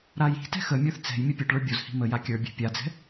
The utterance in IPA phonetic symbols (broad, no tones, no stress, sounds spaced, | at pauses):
ɾ a j i̤ t ɛ̤ x ə mʲ ə˞ θ t͡s ɛ̤ j mʲ ə pʲ ə˞ ʈ ɭ ə˞ bʲ o z h i̤ m ə j a kʲ ə˞ bʲ ɛ̤ pʲ a d͡z ɛ̤